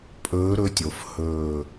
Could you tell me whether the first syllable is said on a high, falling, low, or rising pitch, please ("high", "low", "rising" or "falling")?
rising